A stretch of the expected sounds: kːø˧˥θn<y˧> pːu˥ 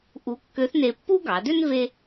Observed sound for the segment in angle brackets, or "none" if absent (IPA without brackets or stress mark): e˧